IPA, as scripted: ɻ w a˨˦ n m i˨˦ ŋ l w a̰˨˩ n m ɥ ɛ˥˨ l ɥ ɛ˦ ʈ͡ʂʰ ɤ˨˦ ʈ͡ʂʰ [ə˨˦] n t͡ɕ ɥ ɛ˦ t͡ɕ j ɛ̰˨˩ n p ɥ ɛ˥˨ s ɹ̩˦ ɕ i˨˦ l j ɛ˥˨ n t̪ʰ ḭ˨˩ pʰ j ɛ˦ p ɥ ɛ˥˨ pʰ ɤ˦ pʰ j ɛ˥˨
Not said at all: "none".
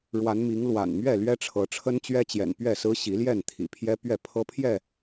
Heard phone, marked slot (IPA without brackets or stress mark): ə˦